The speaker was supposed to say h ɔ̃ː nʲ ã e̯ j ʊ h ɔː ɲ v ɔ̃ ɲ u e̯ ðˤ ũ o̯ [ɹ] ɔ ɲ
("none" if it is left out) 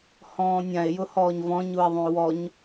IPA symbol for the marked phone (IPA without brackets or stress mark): w